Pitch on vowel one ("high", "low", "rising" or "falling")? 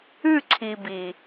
falling